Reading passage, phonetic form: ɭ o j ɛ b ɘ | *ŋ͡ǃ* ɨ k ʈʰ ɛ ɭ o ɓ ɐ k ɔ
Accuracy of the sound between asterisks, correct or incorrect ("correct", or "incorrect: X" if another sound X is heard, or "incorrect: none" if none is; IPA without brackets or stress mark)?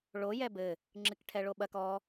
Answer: incorrect: ŋ͡ǁ